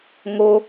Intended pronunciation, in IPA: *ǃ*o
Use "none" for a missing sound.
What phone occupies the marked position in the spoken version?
ŋ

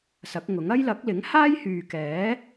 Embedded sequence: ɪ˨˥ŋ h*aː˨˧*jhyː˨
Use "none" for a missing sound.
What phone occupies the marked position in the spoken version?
aː˥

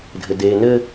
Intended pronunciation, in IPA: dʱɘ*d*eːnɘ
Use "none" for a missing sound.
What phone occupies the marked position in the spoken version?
d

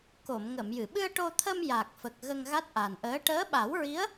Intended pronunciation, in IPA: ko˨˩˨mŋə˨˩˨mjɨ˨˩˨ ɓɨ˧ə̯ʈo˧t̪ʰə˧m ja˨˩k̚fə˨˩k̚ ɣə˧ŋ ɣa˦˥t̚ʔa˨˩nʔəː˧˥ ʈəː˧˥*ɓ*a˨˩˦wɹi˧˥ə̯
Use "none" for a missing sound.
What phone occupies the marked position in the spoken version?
ɓ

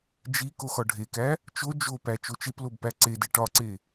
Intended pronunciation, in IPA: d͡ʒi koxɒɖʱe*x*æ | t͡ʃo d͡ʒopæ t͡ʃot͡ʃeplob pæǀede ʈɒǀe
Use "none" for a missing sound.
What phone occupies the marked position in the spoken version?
k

